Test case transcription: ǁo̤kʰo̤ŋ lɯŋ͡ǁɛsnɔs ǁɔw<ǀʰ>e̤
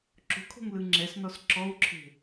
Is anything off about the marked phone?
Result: yes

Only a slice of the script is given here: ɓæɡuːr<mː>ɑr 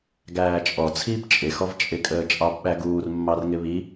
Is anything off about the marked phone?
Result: no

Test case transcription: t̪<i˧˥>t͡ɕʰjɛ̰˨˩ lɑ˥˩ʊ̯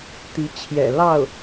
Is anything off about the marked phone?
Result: no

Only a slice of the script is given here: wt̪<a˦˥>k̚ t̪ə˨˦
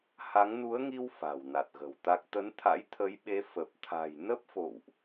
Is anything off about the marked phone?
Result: no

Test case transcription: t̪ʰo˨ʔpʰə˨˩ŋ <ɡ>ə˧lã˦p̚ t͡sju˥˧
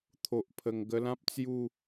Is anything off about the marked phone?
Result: no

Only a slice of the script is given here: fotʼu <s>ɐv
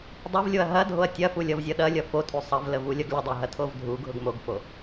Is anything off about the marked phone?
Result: yes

